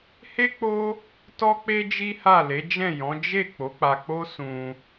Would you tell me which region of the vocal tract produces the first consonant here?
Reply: throat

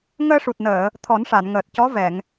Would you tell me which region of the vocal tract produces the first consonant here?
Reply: velum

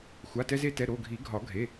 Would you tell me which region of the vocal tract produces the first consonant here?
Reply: velum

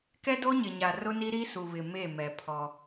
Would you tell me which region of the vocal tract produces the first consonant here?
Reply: velum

